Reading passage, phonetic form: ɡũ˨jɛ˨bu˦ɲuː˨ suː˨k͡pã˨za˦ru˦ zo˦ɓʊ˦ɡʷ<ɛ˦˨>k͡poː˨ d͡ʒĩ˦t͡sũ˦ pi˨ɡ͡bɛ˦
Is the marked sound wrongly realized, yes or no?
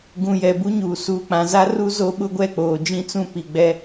no